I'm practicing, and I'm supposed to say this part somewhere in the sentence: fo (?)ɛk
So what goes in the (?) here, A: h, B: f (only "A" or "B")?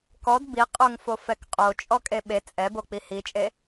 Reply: B